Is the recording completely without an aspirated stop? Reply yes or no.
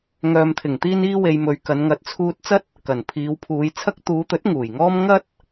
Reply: no